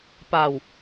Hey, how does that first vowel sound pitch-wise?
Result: low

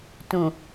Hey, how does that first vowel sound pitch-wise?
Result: low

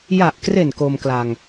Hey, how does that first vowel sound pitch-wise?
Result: low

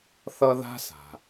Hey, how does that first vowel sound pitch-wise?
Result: high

